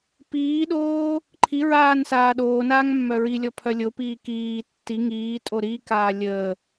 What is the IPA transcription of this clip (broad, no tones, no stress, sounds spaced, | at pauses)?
p iː ɗ oː | ǃʰ i ɹ aː n s aː ɗ oː n aː ŋ mː œ ɹ i lʲ ɔ pʰ œ lʲ o p iː k iː tː i ŋ iː tʼ o ɾ i k aː lʲ əː